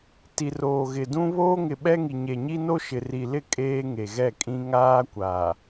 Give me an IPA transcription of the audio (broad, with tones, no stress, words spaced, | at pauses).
ti˨roː˨ɣɪ˨dũ˦ βoː˦ŋɪ˨ɓɛ˦ŋi˨ ɲe˨ɲi˦no˦ ʃɪ˨ri˨lɪ˦˨ kʼeː˦ ŋe˨ɣɛ˦˨kʼĩ˦ ŋaː˦kʷa˨